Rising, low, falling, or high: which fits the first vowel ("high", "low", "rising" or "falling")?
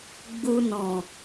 low